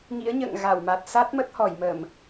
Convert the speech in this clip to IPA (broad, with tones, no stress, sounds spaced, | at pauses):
ŋ ḭ˧˥ ə̯ ɲ ə̰ː˧˨ ŋ ɣ a˧˩ w m a˨˩ t̚ s a˦˥ t̚ m ə˦˥ t̚ h ɔ˧˩ j m ə˧˩˨ m